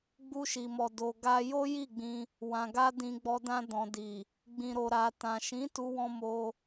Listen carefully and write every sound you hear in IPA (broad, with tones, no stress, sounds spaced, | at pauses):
ɡ͡b u˧ ʃ i˨ m ɔ˨ d o˨ ɡ a˧ j o˦ j i˦˨ ɡ͡b ĩ˧ | w ã˨ ɡ a˧ d ĩ˨ ɡ͡b ɔ˨ d ã˧ d ɔ̃˨ d i˨ | ɡ͡b ĩ˨ ɾ o˨ ɾ a˨ t ã˨ ʃ ĩ˨˦ t u˧ w ɔ̃˧ m o˧